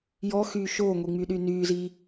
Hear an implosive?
yes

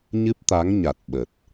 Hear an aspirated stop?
no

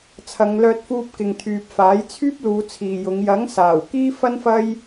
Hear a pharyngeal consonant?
no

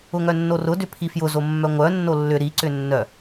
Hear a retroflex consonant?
no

